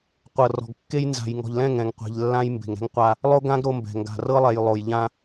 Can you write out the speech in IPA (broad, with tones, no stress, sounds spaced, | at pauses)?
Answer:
qʷ ɤ˨ r ɔ̤˨ ɡ kː e˦ j n z a̤˨ j ŋ ɔ̤˨ ʎ l ɛ̃˦˨ ŋ ɛ̃˨ ŋ qʷ e̤˨ ʎ lː ã˦ j m b e̤˨ ŋ ɾ ɛ̤˦ ŋ qʷ a˦ | lˠ o˦ ɡ ã˦ ɡ ɾ o˦ m b ɛ̤˨ ŋ ɡ a̤˨ r ɤ˦ lˠ ɛ˨ j lˠ o˨ j ʎ ã˦